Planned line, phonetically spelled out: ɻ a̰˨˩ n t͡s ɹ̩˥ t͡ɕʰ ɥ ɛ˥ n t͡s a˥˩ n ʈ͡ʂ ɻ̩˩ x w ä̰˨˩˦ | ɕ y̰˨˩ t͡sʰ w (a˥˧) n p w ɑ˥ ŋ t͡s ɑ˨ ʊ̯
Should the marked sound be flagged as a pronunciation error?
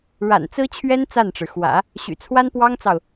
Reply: yes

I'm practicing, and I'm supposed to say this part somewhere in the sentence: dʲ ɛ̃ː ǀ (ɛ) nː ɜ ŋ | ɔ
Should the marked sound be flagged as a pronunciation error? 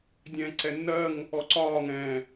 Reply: no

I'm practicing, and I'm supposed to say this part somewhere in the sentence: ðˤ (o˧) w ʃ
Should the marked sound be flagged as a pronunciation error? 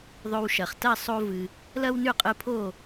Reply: no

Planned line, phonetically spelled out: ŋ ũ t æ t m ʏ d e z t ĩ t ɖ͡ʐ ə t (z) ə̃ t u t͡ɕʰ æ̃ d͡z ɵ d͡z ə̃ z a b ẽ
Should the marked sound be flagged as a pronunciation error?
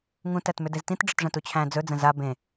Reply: yes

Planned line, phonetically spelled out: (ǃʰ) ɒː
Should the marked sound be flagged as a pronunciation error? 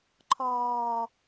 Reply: no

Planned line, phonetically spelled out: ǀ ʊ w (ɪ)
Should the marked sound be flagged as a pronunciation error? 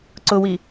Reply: yes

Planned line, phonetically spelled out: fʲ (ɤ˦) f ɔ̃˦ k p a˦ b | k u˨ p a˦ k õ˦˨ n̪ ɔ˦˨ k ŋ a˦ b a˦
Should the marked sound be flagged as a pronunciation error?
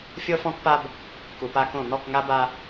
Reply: no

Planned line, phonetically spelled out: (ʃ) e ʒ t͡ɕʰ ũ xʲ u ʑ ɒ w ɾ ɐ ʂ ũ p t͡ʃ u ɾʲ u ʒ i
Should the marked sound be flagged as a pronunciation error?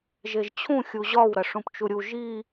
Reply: yes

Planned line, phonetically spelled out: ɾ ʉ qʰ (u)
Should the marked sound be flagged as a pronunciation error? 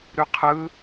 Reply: yes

